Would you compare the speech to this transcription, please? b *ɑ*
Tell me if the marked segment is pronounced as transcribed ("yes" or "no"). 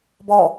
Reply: no